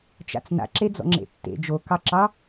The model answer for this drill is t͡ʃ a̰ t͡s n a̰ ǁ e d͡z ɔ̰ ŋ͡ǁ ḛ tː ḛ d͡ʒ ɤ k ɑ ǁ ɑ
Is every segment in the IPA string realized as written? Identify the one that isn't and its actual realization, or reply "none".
ɤ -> o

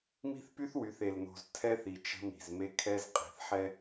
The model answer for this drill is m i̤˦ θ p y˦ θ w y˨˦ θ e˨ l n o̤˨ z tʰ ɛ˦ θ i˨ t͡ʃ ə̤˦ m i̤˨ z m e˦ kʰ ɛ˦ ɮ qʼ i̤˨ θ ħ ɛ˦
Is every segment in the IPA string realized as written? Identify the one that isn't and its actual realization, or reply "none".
ɮ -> z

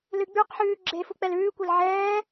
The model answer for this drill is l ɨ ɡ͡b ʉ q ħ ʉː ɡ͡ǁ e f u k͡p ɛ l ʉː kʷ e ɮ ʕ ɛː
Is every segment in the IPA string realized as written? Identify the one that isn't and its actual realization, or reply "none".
ɮ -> l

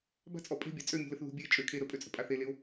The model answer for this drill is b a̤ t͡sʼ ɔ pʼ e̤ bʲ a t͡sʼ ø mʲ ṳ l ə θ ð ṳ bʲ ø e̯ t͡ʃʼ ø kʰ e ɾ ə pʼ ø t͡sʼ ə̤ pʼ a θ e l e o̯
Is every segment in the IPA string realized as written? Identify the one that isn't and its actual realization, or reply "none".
none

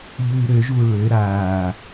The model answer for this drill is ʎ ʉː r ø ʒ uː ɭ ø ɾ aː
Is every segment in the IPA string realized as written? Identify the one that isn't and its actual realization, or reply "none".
r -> ɾ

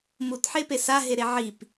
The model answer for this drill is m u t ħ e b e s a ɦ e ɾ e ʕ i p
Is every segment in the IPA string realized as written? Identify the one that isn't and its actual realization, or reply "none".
b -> p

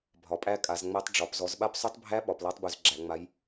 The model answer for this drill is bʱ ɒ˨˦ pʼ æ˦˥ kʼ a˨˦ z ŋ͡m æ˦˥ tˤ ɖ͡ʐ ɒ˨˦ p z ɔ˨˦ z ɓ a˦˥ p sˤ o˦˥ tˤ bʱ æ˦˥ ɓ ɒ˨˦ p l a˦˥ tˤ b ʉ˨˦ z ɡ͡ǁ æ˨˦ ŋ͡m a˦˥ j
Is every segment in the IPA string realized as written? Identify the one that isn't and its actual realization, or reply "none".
none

